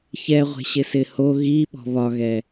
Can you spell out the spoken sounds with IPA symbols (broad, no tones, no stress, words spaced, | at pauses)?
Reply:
çɛʁʷe̤ɕɪsɪ ho ɣiɓɔ̤ βɒɣɛ